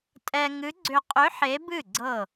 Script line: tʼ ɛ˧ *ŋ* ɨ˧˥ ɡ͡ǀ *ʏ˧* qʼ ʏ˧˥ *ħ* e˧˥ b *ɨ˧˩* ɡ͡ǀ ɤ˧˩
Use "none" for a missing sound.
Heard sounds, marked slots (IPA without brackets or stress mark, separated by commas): ŋ, ʏ˧, ħ, ɨ˥˩